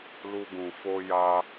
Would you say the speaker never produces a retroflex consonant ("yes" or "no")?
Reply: yes